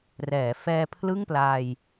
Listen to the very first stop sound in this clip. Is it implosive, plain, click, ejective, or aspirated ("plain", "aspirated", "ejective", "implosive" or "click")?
aspirated